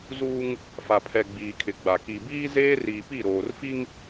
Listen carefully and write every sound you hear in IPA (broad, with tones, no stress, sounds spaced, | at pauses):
z uː˦ ŋ | f a˨ pʰ ɛ˨ ɡ͡b iː˨ kʰ ɪ˨ ɡ͡b a˨ k i˨ b iː˦ z eː˦ r iː˨ p i˦˨ ɾ oː˨ r f i˦ ŋ